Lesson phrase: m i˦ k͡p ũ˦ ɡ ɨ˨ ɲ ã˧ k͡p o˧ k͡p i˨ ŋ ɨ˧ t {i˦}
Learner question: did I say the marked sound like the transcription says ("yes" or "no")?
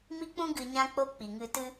no